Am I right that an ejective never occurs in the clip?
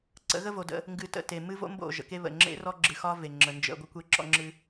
yes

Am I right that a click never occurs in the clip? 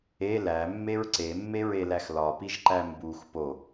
no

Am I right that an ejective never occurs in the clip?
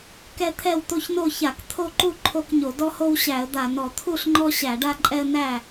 no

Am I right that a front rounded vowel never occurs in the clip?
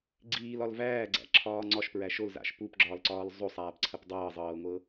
yes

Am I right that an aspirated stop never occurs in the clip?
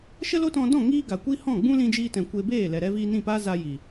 yes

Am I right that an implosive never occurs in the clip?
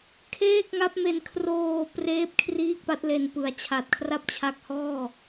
yes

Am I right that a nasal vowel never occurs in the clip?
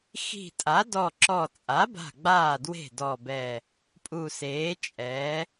yes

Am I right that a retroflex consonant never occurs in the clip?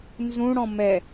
no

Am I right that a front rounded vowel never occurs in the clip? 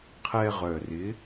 no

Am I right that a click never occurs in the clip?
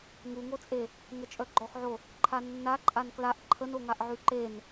no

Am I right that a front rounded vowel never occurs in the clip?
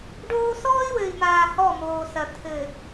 yes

